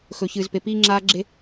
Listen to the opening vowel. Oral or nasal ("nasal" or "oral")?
oral